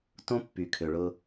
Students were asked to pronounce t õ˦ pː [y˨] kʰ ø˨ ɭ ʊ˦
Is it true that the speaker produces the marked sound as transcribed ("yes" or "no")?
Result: yes